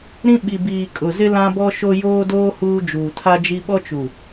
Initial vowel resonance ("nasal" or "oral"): nasal